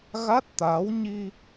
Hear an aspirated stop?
no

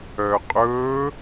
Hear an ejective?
yes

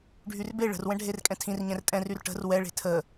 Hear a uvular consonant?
no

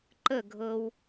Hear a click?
yes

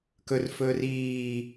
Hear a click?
no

